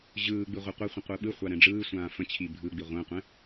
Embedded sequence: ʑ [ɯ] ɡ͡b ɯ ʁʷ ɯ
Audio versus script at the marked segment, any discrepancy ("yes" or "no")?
yes